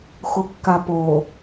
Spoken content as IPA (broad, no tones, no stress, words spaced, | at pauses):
xokːapo